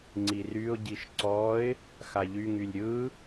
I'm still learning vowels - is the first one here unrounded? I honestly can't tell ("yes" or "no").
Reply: yes